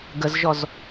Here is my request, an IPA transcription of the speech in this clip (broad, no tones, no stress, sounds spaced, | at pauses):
ɡ ə z ʒ ɔ z